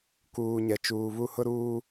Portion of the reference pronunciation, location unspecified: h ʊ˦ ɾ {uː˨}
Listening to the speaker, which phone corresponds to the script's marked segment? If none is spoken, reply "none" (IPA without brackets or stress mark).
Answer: uː˦